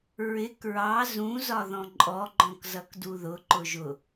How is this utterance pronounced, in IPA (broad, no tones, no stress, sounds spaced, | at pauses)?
ɹ ɪ k ɹ ɑ z ũ z ɒ ð ɔ̃ ǃʼ ɔ ɡ͡ǃ ɔ̃ k z ʌ k d u ð ʊ ǃ ʊ ʒ ʊ